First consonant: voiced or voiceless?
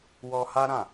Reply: voiced